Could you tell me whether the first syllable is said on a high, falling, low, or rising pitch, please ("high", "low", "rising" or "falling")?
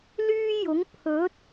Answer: high